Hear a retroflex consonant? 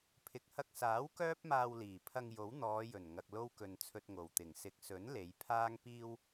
no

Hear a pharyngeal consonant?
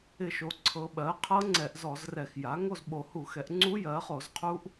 no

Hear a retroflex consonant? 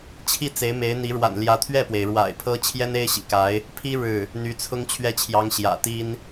yes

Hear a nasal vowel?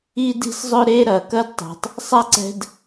no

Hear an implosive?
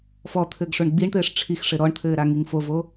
no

